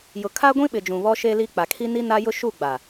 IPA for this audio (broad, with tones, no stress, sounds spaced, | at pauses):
j ʊ˨ kʰ a˦ ɡʷ ĩ˦ ɓ ɪ˨ d͡ʒ ũ˨ β ɔ˦ ʃ e˦ l i˦ k͡p a˨ kʰ i˦ n i˦ n a˦ j ʊ˦ ʃ u˦˨ ɡ͡b a˨